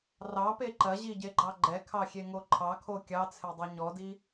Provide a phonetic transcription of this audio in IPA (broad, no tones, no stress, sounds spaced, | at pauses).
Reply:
r ɑ p e ǃ ɐ ʑ i ɟ e ɡ͡ǃ ɑ ɡ͡ǃ ɛ kʰ ɑ xʲ e ŋ o ǃʰ ɑ kʰ o kʲ ɑ t͡sʰ e dˤ œ ɲ ɔ d i